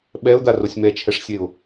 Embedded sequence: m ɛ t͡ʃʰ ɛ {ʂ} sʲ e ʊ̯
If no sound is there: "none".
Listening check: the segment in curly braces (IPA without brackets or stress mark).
ʂ